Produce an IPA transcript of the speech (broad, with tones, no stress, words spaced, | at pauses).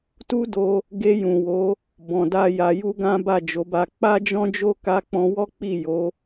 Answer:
tu˦do˧ | ɡe˧jũ˨wo˨˦ | bɔ̃˨da˧ ja˨ju˧ ɡã˦ba˦˨d͡ʒo˨˦ba˧ k͡pa˦d͡ʒɔ̃˦d͡ʒo˦ ka˧k͡pɔ̃˧wɔ˦ k͡pi˦˨ jo˨˦